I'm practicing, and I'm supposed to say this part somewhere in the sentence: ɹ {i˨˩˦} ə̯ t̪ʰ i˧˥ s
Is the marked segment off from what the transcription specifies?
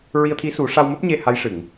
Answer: yes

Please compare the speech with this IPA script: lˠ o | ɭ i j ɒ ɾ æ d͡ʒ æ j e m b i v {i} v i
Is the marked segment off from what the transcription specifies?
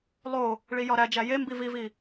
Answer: no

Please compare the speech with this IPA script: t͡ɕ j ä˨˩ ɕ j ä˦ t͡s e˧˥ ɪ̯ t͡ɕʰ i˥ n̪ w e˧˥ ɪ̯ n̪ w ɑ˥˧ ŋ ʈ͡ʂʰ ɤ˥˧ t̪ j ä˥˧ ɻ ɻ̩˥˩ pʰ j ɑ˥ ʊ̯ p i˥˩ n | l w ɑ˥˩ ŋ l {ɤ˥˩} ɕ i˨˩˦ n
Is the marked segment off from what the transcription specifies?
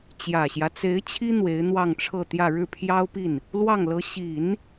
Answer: yes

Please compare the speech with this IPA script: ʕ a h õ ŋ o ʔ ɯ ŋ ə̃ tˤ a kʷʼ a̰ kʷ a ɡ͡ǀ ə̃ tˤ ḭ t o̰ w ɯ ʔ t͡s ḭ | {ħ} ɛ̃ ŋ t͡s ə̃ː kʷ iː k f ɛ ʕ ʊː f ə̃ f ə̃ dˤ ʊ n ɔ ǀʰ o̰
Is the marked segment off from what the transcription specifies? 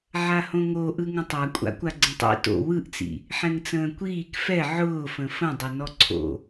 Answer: no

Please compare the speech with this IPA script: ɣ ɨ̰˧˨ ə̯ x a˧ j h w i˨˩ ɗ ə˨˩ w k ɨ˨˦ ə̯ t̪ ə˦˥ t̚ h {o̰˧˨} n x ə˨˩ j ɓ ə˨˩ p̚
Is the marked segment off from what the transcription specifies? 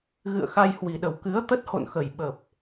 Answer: no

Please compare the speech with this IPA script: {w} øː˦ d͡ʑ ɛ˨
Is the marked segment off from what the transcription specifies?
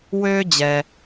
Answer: no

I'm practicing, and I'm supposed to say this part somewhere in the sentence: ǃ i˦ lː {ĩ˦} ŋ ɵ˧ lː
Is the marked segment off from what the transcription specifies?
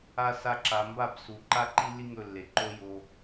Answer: yes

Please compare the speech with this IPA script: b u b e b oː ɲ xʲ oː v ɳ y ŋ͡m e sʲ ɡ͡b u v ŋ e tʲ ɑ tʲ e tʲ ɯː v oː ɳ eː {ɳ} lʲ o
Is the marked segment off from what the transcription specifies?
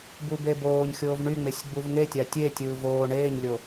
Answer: yes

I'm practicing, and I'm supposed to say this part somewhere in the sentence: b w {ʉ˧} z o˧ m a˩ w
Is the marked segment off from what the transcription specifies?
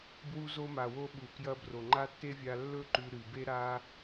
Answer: yes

